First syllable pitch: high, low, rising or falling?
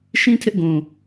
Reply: high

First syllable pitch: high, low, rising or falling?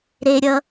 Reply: high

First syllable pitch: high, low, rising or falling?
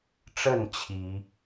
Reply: falling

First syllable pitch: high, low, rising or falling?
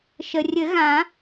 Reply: low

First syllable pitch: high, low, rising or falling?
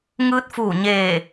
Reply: rising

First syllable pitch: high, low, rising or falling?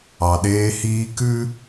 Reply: low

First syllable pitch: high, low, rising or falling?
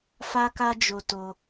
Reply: high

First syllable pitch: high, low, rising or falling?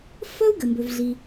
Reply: high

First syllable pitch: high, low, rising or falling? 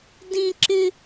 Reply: high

